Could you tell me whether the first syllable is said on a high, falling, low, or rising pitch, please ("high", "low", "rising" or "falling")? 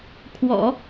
low